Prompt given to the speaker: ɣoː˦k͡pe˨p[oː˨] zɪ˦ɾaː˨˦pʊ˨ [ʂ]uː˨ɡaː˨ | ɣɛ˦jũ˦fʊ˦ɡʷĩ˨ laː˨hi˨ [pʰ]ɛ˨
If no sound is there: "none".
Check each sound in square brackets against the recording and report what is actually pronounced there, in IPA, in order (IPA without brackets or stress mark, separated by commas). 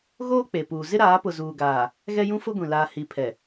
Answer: uː˨, z, pʰ